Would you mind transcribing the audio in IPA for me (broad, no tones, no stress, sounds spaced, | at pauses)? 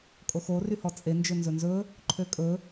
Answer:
kʼ o x o r y h ɔ t͡sʼ e n d͡ʒ ɵ n z ɵ n z ɵ | ǃʰ ø kʼ ɵ